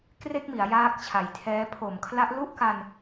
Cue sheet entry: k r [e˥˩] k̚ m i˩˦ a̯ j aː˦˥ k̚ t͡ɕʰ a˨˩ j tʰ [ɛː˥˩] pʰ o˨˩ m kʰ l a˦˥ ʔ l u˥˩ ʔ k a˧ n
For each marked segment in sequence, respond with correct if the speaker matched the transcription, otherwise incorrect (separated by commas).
correct, incorrect